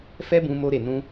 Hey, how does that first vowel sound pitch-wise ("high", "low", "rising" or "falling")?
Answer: high